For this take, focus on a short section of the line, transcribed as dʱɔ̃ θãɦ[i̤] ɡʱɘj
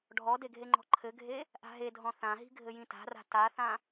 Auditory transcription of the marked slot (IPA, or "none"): i̤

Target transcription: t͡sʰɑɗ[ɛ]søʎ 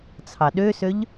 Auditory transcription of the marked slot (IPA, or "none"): ø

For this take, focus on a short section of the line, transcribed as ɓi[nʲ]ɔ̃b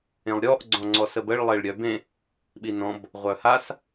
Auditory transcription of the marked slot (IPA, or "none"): n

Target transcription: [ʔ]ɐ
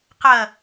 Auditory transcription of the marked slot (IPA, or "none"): q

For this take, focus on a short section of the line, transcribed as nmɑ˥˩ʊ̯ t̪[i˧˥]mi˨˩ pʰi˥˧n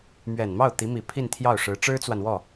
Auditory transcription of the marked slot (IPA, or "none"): i˧˥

